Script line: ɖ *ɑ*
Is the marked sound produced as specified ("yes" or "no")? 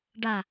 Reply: no